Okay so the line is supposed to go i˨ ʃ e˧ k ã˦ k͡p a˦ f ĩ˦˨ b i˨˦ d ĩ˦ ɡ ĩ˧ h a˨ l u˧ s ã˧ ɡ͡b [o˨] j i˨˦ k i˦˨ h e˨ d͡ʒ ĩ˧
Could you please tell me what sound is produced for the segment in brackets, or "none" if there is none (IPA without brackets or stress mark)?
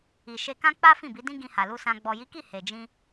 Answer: ɔ˨